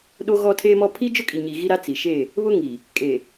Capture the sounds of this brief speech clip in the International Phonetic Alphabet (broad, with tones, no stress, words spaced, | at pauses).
ɗo˦ɣɔ˦tʰe˦mɔ˦ pʰi˦ d͡ʒʊ˦kʼi˨ɲi˨ ɣi˦ɾa˦ t͡si˨ʃe˦˨ | βʊ˦ŋi˨ | kʼe˨